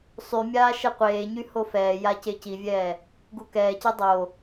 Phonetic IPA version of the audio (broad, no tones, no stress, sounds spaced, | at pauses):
sˤ y mʲ aː ʃ ɛ qʷ eː ɲ y h o f ɛː j a c e c i vʲ ɛː | ɡ u k ɛː c e dˤ o